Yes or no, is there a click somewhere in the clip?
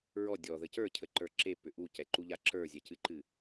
yes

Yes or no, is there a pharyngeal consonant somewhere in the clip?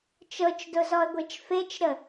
no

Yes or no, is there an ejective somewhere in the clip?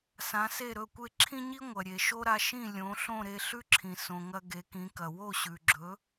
no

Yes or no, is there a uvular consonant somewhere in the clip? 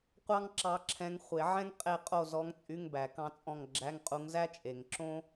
yes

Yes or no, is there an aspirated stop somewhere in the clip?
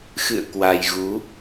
no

